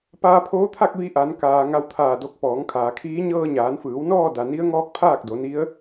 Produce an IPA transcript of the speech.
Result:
p aː˧ pʰ oː˧˥ t̪ʰ a˥˨ k̚ ʋ i˧ ʔ a˩˧ n k aː˩ ŋ a˧ w t̪ʰ aː˧˩ d o˧ k̚ p ɔː˩˧ ŋ kʰ aː˩ kʰ iː˧˥ ɲ ɤː˧ ɲ aː˩˧ n f ɯː˩˧ w n ɔː˥˨ d a˩ n i˧˥ ə̯ ŋ ɔː˧˥ k̚ pʰ aː˥˨ k̚ d o˩˧ n i˧˥ ə̯

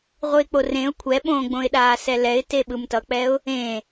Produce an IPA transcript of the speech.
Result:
ʁʷ ɯ ɪ̯ k͡p o r ẽ ʊ̯ kʷʰ ɛ ɓ õː ɡ͡b õ ɪ̯ ɗ aː s ɛ l ɛ ɪ̯ t e ɓ ɯ m t ʌ k͡p ɛ ʊ̯ | ẽ

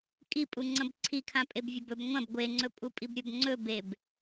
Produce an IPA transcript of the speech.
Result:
kʼ i pʼ u ŋ͡ǀ ɐ̃ b ǀʰ i kʰ ã pʼ e b vʲ ɐ b ɵ b ŋʷ ɐ̃ b ɡʷ e ŋ͡ǀ ɵ pʼ u pʼ i b ɾʲ ɵ b ŋ͡ǀ ɵ b e b

